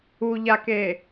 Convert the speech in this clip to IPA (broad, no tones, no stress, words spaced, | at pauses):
uʎake